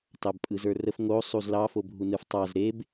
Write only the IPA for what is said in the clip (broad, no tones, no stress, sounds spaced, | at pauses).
t ɑ b pʼ ɯ z ə˞ r ə f ŋ o sˤ u z l ɑ f o bʱ u n ɯ f tˤ ɑ z ɾ e b